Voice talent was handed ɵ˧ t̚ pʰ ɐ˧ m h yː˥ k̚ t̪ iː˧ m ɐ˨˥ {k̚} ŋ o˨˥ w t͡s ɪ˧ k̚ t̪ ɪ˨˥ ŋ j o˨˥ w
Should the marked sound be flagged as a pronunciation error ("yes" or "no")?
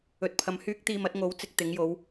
yes